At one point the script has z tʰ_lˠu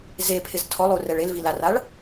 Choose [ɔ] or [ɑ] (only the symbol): ɔ